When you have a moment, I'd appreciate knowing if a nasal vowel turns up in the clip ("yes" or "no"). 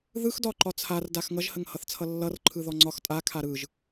no